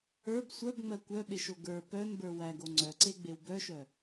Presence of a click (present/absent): present